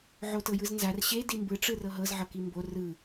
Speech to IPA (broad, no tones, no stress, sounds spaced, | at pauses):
ʕ o t ɤ j ɯ z n z a r ɕ e d i m b ɯ ʈ͡ʂ ɯ r ɤ ɦ ɤ z ʕ ɤ k i m b o r ɯ